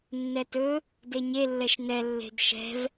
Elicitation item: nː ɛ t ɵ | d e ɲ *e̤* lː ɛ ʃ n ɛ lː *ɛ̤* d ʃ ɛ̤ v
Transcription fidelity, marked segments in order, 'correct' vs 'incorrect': incorrect: e, incorrect: e̤

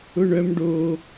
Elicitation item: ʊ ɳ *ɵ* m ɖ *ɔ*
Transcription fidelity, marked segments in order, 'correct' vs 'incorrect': incorrect: œ, incorrect: o

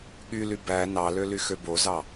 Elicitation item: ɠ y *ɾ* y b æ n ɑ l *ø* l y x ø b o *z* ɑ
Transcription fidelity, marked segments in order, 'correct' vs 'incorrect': incorrect: l, correct, correct

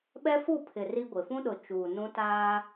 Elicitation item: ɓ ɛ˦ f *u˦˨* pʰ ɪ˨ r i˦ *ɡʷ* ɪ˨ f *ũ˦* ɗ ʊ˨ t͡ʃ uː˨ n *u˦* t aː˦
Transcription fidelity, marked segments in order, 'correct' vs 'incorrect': correct, correct, correct, incorrect: ũ˦

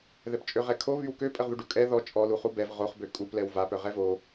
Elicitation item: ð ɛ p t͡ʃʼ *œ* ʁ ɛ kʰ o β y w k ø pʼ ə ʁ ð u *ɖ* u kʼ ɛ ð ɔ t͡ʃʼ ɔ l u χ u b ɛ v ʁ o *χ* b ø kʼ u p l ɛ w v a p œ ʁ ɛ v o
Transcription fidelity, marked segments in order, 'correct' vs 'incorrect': incorrect: ø, correct, correct

